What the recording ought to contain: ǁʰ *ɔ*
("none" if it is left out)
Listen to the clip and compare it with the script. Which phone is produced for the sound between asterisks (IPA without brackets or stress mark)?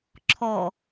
ɔ